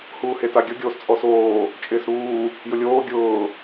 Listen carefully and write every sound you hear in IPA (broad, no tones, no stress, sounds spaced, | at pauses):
h uː h e t a ɡʲ ʊ ɡʲ oː s t͡sʼ ɔ s oː | t͡ʃʼ ɪː s ɾ uː | j ʊ lʲ oː ɡʲ ʊː